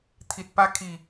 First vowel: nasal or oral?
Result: oral